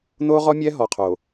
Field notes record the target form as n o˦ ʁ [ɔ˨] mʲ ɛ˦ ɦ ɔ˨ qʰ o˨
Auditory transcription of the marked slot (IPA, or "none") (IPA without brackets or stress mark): ɔ˦